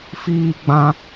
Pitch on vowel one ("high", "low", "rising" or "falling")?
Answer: high